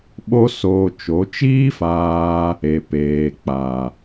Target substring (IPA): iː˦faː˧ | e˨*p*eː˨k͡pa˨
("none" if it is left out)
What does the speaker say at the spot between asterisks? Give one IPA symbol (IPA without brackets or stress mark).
p